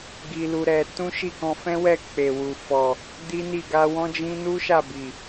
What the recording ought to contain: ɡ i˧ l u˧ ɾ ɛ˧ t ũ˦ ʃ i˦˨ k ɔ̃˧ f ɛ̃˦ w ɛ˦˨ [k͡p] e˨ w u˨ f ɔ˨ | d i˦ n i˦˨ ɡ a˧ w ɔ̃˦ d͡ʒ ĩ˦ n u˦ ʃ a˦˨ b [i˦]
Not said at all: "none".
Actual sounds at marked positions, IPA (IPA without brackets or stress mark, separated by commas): k͡p, i˨